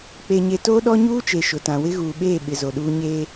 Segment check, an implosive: present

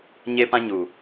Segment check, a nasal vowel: present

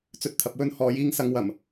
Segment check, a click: absent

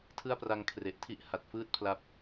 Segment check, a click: absent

